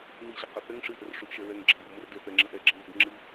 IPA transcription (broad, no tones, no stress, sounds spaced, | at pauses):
n i ɕ ɨ q ʌ θ ɛ ŋ ʂ ɨ ʔ ə r ʂ u ʔ ʃ ɛ ɹ ɛ ŋ ɡ͡ǁ ʌ m b ə m ə r d ɛ θ ɛ ŋ͡ǁ ə ʔ ɛ ɡ͡ǁ ɨ n z ʌ d ŋ͡ǁ ɨ